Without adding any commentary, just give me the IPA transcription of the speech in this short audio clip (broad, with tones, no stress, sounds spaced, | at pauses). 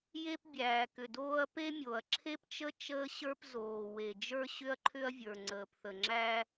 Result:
j e˥ p bʲ æː˩ k ʏ˩ d oː˥ ɐ̯ p e˥ mʲ o˩ ɐ̯ ǁʰ e˥ p t͡ʃ ə˥ t͡ʃ əː˥ ɕ ə˞˥ p z oː˩ w e˩ d͡ʒ ə˞˥ ɕ ʏ˥ ɐ̯ ǃʰ ʏ˥ ɐ̯ vʲ ə˞˩ ŋ͡ǀ əː˩ p θ ə˩ ŋ͡ǁ æ˥